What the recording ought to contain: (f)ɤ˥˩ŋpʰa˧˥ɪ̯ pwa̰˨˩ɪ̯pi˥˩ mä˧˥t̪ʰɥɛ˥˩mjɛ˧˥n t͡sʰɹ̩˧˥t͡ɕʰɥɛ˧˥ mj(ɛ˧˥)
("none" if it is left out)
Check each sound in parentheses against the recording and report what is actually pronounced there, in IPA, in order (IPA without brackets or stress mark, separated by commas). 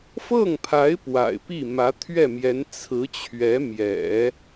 f, ɛ̰˨˩˦